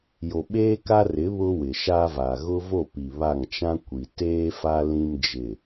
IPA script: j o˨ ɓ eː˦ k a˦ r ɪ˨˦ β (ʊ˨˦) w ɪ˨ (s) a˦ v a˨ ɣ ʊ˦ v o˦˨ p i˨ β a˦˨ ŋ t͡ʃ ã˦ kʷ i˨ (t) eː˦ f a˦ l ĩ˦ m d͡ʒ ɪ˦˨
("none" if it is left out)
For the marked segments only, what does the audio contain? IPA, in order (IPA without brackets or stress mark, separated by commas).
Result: ʊ˦, ʃ, t